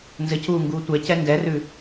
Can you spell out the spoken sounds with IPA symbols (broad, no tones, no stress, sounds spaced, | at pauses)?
n z ɘ c uː ŋ ɡ uː tʷ ɛ c ɛ n d ɛ r ʉ